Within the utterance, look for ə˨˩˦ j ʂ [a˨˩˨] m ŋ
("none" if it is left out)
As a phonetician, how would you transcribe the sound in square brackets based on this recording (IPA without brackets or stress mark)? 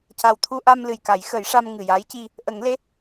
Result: a˧